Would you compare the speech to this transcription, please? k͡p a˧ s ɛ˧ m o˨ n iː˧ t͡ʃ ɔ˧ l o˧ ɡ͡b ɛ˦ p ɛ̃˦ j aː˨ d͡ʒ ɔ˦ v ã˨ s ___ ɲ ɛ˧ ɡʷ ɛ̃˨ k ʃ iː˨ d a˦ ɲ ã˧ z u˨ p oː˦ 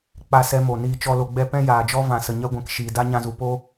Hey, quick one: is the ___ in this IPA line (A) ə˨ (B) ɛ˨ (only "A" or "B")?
A